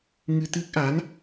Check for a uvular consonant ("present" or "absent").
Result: absent